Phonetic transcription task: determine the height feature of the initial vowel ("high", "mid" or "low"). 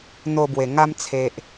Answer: mid